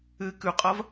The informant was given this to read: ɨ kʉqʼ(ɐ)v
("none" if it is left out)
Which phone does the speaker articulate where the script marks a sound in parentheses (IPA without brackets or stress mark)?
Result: ɐ